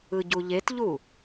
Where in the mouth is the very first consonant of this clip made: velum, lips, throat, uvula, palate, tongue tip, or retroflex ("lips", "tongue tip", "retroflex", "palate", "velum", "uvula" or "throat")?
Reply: palate